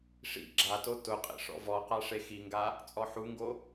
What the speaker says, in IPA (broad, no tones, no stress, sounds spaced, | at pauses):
ʂ ḭ ɡ͡ǁ a t o t ʊ qʼ ḛ ʂ ɔ̰ v ɔ q a ʂ e x i ŋ ɡ a | t͡sʼ ɔ ħ u ŋ ɡ o